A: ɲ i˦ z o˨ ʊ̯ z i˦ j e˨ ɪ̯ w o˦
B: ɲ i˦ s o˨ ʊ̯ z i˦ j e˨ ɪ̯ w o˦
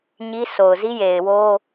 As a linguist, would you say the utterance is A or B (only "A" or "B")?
B